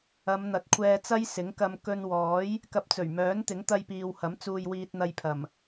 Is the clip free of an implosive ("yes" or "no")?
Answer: yes